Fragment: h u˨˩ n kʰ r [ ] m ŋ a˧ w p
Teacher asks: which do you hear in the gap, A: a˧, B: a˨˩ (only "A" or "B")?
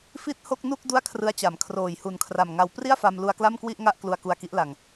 B